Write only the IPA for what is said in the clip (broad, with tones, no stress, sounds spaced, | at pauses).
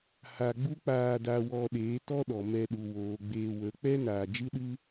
h a˧ ɡ͡b u˦ k͡p aː˧ d a˧ w ɔ˧ ɗ eː˨˦ t ɔ˦ ɗ ɔ˨ m ɛ˧ ɗ u˨ w oː˨ ɡ͡b eː˧ w ə˨˦ k͡p ɛ˦ n aː˨ d͡ʒ ɨ˦ ɗ ɨ˦